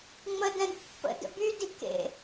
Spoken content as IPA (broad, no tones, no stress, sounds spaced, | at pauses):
ŋ͡m ə d ɛ̃ d pː ə̰ d ə̰ b y d i k ḛ